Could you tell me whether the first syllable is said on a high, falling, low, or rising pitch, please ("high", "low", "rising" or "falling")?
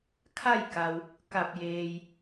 falling